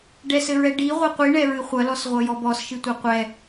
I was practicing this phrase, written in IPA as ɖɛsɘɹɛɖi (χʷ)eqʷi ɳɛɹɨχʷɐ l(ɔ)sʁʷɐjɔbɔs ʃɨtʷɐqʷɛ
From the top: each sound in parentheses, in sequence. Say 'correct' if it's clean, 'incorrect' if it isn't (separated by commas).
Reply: incorrect, correct